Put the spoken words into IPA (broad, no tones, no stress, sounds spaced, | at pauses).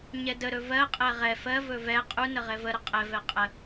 ɲ ɛ d ə ɾ ɵ v ɜ qʼ ɛ ʁ ɛ f ɜ v ɵ v ɛ qʼ u n ə ʁ ɛ v ə ɾ ə qʼ ɛ v ɛ qʼ ə